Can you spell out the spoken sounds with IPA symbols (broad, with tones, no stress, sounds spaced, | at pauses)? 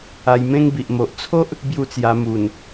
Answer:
a˧ j m ẽ˦ ŋ b i˨ ʔ m o˨ ʔ t͡sʰ o˦ ʔ | b j u˦ t͡s j a˧ m u˨˩ n